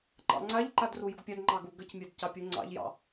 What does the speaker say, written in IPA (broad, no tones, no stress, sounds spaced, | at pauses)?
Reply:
ǃ ɑ̰ ŋ͡ǀ a ʎ ǃ a d r u j u ɡ pʲ a d ŋ͡ǃ ɑ ɡ u ɡ ə c mʲ a d c ɑ pʲ u ŋ͡ǀ ɑ̰ ʎ j ɑ̰